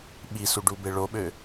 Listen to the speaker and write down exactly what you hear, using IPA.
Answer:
ɓ i s u ɖ u b e ɭ o ɓ ø

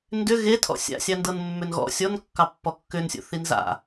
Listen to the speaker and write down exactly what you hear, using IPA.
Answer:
n d ʏ ɣ e tʰ ɔ̰ sʲ a̰ sʲ ɑ n d ɤ n mː ʏ n ɣ ɔ̰ sʲ ɔ n kː ɑ pː ɔ kː ʏ n sʲ o̰ θ i n z a̰

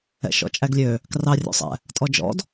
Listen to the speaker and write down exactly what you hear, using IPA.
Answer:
ɛ̰ ʃ ɔ̰ t͡ʃʼ æ ɡ lʲ ø | k r ɑ rʲ o̰ sˤ ɛ̰ | tʼ ɔ d͡ʒ ɔ̰ d

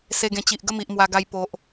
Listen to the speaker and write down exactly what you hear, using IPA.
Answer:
s e˧ ɡ ẽ˧ t͡ɕ i˨ ʔ ɡ ə˥˧ m i˨ ʔ m w a˧ ɡ a˧ j p o˨ ʔ

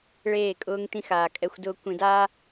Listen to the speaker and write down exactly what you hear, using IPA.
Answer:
ɭ eː˦˨ kʼ ʊː˦ ŋ t ĩ˦ x aː˨ kʼ ɛ˦ xʷ d ʊː˦ kʷ ĩ˨ d aː˦

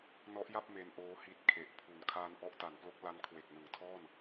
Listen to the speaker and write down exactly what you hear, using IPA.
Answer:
n ɔ˦˥ ʔ j a˥˩ p̚ m e˧ n ʔ oː˦˥ h i˦˥ t̚ kʰ e˨˩ ʔ pʰ u˨˩ n kʰ aː˧ n ʔ ɔ˦˥ ʔ t a˩˦ n p l o˦˥ k̚ l a˦˥ n kʰ w e˨˩ k̚ n ɯ˩˦ ŋ tʰ ɔː˥˩ n

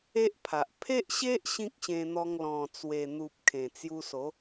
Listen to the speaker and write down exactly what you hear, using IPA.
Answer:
e˦ ʔ pʰ a˨ ʔ pʰ e˦ ʔ ɕ e˦ ʔ ɕ ĩ˦ k̚ ɕ ẽ˧ n̪ ɔ˧ ŋ l ɔ̃˨˩ t͡s w e˨˩ n̪ u˨ p̚ kʰ ẽ˨˩ t͡s j u˧ s o˨˦

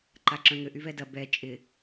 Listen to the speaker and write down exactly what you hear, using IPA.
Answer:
ǃ a ǁ œ̃ ŋ ʏ ʔ y v ɛ d ɐ b ɛ t͡ʃʼ ɪ

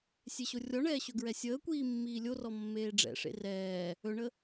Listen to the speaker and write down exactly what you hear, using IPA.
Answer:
sʲ e ɕ o rʲ ɔ ɳ ɛː ɕ ɵ ɡ ɹ ɛ sʲ əː kʷ iː mː iː lʲ o r ɔ mː eː ɖ͡ʐ ɛ̰ ʂ ḛ r ɛː | ɵ ɳ ə

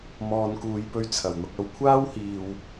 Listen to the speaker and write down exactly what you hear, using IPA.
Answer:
m ɔː˨ n k uː˨ j p ɵ˧ ɥ t͡sʰ ɐ˨˩ w n̪ ʊ˧ k̚ ɐ˧ w kʷʰ aː˥ w h iː˨ w

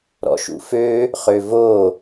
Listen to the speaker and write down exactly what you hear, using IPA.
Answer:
ɾ ɔ̰ ʃ ṵ f ø | χ ø v o

